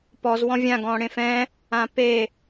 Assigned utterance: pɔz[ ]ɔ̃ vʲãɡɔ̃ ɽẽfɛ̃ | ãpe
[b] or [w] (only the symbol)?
w